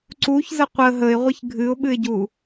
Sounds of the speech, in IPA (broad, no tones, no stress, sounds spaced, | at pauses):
ǀ u ç z ə qʷ ə ɦ ə ɪ̯ ʁʷ ɨ ç ɡʱ ɨ ʊ̯ ɓ ɨ ɪ̯ ɟ u